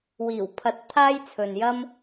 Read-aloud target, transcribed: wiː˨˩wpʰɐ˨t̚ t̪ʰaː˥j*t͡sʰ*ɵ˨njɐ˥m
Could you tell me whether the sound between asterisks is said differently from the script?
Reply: no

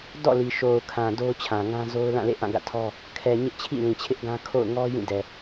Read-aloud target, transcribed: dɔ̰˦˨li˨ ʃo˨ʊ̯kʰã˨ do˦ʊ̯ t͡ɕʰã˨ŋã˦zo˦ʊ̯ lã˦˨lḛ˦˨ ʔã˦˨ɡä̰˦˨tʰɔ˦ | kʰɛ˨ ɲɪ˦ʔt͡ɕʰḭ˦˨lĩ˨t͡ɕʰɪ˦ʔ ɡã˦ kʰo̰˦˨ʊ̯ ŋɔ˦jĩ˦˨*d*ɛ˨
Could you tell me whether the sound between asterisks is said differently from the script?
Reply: no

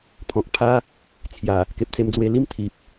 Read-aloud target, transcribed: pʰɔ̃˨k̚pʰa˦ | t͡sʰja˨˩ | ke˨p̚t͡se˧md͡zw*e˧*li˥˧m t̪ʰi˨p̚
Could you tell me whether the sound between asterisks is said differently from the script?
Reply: no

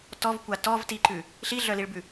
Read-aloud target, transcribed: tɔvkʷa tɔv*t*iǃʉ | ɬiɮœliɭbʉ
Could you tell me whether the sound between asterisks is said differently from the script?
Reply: no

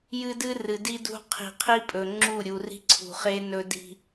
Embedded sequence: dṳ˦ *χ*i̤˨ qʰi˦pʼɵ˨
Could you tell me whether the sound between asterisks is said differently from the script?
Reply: yes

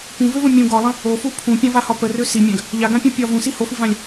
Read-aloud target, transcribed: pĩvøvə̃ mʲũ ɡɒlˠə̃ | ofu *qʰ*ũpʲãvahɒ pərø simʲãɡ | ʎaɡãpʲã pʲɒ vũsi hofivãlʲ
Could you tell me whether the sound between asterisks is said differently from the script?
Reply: yes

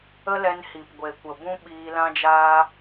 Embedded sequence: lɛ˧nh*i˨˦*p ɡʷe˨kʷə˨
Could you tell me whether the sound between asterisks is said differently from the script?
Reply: yes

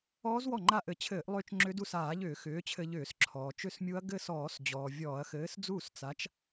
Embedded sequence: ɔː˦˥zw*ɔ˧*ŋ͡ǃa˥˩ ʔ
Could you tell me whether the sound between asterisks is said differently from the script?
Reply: yes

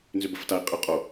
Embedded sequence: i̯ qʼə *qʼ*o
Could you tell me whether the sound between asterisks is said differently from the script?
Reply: no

